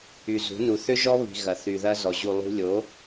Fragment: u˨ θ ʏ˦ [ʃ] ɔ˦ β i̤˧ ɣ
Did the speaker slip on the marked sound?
yes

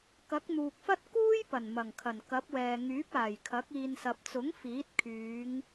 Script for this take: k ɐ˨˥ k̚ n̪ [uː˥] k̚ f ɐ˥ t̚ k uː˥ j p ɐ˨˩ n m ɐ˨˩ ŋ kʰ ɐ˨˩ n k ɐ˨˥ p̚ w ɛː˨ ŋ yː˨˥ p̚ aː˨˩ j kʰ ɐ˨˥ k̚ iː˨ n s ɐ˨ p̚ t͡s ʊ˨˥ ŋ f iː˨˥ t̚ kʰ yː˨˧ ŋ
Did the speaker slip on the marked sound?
yes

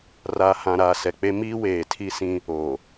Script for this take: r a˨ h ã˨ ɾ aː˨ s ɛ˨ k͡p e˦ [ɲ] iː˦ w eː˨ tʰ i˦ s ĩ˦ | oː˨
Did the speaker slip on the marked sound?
yes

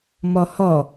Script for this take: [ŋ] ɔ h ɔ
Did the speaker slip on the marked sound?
yes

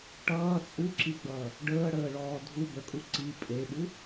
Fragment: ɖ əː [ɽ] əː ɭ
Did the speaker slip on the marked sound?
no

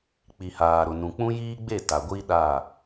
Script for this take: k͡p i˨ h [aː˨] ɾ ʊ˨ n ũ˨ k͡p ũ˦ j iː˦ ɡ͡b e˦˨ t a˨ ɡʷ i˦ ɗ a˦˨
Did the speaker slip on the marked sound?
no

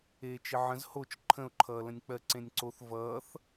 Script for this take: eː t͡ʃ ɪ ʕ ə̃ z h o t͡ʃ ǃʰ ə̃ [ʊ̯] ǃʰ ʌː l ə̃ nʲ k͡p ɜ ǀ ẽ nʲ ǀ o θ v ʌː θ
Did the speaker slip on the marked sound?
no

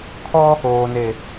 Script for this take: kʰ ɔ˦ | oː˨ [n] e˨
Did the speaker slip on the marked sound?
no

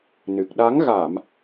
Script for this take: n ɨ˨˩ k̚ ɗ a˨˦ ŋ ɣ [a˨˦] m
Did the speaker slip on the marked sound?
yes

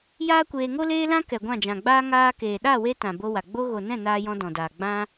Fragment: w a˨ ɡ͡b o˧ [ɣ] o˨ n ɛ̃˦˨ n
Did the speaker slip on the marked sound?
no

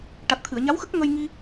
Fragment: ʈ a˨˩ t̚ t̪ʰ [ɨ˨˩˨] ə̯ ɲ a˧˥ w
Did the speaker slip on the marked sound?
no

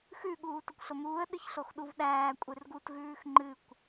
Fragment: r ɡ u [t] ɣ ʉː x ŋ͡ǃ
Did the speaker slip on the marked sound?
no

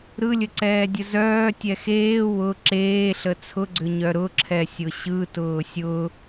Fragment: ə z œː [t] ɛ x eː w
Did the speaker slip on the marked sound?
yes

